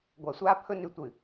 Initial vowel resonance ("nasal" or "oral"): oral